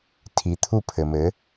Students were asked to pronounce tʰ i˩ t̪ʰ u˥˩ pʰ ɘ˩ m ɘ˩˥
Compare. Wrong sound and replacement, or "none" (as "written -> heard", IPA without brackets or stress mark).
none